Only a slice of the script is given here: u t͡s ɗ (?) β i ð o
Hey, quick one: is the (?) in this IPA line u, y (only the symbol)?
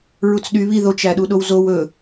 y